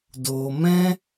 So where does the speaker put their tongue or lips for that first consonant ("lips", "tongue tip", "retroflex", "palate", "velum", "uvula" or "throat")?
tongue tip